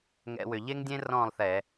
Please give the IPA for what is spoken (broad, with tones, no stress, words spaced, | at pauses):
ŋɛ̰˧˩˧wʏ˨˩ ʎe˦ŋdʲẽ˦ rɔ̃ː˥˨lˠ θɛ˧˩˧